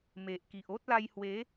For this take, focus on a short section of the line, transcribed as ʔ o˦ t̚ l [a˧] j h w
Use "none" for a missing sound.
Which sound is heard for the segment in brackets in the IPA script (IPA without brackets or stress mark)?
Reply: a˧